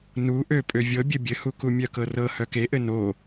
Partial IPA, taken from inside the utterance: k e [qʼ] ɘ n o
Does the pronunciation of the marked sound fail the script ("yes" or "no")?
yes